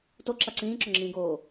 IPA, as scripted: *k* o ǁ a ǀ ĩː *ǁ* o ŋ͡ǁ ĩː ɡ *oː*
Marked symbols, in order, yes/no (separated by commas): no, yes, yes